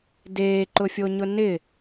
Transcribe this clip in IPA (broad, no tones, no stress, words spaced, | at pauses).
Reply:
deːǃʊfʲoɲʊ nɪ